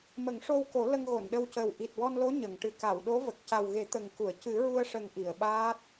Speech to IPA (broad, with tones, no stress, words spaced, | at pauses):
mə˨˩˦ŋʂo˧w ko˨˩˦ lə˧ŋɣo˨˩˨nɗə˧wcəː˨˩w ʔi˨˩t̚wɔ˧nlo˧˥ ɲə˨˩˨ŋʈɨ˨˩ ka˨˩˨wɗo˧˥və˨˩k̚ ca˨˩wɣe˨˩˦ t̪ə˨˩ŋku˨˩˨ə̯ cɨ˨˩˦ɹu˧ə̯ʂə˨˩ŋ ʔi˨˩˨ə̯ɓaː˦˥t̚